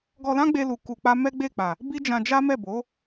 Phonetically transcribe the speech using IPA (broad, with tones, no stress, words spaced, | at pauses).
ɡɔ˧lã˦ɡ͡be˧lu˨ ku˧k͡pa˦ mɛ˦ɡ͡be˦˨k͡pa˨ | bi˦d͡ʒã˧d͡ʒa˦mɛ˦˨ bo˨˦